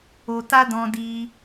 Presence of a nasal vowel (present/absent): present